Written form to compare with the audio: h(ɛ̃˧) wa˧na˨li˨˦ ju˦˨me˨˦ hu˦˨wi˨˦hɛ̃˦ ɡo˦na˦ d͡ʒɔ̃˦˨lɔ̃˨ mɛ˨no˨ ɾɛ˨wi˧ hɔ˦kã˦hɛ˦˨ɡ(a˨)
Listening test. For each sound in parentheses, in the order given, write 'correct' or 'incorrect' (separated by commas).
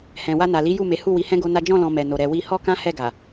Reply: incorrect, correct